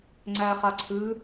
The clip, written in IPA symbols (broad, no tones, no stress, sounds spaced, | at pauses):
ŋ͡ǀ æ χ a ǀʰ ʉ